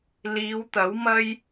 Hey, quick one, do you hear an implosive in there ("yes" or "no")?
no